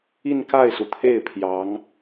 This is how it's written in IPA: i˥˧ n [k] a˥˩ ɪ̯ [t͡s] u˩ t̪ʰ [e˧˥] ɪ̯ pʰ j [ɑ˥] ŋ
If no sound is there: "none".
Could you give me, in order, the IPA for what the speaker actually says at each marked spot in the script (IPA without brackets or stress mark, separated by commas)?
k, s, e˥˩, ɑ˧˥